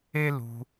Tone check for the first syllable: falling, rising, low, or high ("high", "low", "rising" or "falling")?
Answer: high